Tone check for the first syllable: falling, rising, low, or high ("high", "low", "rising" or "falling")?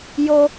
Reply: high